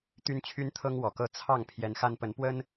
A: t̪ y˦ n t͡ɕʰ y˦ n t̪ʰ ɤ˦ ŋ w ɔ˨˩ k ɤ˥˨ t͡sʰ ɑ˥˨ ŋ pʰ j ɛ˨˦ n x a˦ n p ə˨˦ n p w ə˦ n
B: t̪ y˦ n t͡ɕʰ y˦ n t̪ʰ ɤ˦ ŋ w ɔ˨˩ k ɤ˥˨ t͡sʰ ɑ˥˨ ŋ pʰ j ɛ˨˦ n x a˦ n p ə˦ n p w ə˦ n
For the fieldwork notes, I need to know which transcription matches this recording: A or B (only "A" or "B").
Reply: A